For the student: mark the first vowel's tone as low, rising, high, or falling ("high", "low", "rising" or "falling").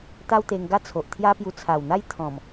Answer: high